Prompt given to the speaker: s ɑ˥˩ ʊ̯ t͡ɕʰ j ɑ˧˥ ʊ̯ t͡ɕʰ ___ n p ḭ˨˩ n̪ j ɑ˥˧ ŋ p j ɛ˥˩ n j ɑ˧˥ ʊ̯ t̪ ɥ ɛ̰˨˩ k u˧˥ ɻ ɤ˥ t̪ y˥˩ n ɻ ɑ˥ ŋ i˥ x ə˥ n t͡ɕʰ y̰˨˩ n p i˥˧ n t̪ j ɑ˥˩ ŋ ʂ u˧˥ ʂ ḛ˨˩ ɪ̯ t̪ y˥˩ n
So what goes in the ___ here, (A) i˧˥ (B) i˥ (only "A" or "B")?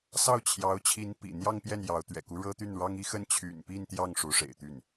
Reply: A